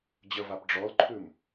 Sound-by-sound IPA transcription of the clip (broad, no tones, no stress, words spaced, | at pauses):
d͡ʑəvap ɖ͡ʐɔlǃʰʉm